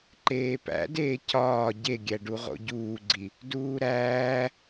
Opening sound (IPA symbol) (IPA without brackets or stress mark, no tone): ǃ